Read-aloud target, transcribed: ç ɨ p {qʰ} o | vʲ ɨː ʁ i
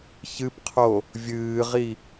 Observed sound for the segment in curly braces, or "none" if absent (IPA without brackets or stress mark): qʰ